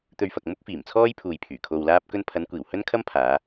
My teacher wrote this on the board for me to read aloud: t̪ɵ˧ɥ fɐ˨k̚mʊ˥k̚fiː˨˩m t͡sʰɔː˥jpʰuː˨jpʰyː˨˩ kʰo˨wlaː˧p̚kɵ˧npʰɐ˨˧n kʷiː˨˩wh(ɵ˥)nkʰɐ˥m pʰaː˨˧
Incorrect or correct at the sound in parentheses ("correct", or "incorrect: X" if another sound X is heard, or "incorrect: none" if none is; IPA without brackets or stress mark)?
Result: correct